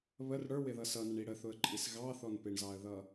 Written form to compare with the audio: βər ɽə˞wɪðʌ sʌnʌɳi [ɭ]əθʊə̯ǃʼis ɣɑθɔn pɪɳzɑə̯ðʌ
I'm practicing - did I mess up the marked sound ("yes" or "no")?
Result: yes